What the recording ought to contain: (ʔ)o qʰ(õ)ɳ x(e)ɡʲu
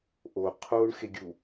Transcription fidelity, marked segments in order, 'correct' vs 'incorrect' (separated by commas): correct, incorrect, correct